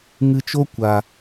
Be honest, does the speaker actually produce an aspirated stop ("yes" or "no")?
no